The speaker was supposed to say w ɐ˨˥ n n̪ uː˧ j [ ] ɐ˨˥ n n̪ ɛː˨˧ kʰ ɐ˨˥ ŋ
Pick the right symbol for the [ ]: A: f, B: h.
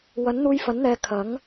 A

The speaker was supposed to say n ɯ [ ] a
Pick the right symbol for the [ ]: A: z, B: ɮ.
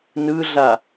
B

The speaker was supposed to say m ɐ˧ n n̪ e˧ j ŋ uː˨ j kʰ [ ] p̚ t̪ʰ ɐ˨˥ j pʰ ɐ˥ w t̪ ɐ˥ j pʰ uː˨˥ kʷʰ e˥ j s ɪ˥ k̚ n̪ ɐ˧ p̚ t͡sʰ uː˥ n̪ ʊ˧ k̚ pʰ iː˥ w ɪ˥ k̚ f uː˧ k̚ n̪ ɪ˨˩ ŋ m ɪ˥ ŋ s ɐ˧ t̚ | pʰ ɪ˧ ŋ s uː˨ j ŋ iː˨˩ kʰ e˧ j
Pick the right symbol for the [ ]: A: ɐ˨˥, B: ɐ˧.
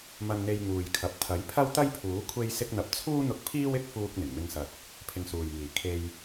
A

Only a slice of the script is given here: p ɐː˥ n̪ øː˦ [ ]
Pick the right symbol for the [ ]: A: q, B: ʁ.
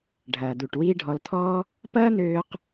A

